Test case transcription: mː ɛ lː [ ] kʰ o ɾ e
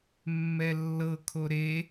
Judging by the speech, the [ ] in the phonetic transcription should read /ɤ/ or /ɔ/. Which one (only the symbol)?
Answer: ɤ